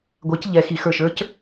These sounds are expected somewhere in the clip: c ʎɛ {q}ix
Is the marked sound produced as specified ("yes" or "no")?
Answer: no